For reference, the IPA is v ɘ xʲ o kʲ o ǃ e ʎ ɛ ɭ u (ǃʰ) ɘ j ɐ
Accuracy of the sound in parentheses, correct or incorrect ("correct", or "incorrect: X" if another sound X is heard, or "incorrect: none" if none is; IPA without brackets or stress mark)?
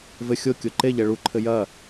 correct